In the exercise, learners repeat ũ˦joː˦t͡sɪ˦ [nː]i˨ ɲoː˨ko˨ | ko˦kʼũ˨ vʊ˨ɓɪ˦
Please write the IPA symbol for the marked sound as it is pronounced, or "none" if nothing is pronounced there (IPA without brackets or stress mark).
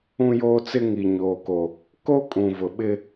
ŋ